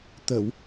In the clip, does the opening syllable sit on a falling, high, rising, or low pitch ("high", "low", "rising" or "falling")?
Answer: low